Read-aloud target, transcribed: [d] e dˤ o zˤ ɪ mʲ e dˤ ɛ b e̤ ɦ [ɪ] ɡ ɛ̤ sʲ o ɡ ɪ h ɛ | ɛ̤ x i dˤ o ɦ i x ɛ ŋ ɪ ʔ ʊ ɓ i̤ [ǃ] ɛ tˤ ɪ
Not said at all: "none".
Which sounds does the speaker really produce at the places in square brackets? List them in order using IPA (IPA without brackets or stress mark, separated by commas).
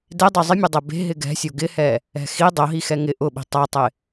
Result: d, ɪ, tˤ